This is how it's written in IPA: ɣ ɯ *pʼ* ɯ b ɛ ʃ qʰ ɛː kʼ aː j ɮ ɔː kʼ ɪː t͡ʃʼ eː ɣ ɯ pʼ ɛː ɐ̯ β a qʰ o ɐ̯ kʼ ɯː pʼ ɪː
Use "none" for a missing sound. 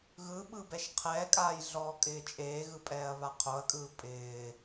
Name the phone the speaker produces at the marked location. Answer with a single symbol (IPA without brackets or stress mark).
ɓ